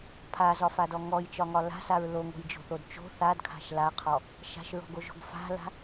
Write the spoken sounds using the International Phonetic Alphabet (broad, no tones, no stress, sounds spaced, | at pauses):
pʰ a z ɒ f a d ɔ ŋ ɔ j t͡ʃ ɒ ŋ ɒ l a̤ s a ɹ l o ŋ o̤ j d͡ʒ o̤ θ o d t͡ʃ o̤ θ a d kʰ a̤ ʃ l a qʰ ɔ | ʃ a̤ ʃ ɹ ɔ̤ ɡ o ʒ o̤ ɡ f a̤ l a̤